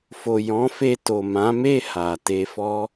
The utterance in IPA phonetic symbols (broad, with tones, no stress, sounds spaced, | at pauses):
f o˨ j ɔ̃˨˦ f e˧ t o˨ m ã˨˦ m e˦˨ h a˨ t e˧ f ɔ˦